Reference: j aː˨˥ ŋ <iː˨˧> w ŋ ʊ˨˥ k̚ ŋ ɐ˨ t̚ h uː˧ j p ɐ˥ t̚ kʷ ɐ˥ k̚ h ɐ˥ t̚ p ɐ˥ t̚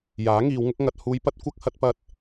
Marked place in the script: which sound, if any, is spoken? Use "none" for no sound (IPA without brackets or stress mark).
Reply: iː˨˧